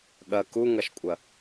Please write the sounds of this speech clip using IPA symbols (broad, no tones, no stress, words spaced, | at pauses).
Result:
ɠɐ kuŋɐʃkʷʼɐ